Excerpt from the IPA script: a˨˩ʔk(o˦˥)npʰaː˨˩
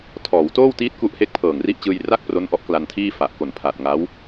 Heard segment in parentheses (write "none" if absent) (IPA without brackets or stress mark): o˨˩